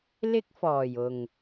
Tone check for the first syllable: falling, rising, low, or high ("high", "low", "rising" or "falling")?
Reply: high